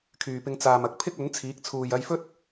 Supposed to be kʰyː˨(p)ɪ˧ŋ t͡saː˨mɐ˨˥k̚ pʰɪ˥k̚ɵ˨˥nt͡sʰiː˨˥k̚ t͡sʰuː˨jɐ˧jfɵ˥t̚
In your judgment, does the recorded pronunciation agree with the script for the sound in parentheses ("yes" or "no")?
yes